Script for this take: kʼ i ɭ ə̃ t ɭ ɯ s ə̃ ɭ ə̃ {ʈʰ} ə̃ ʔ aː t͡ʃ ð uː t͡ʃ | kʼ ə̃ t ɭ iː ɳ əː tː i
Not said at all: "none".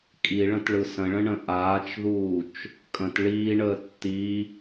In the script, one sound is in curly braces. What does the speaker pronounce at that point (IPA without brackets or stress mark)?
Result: ɳ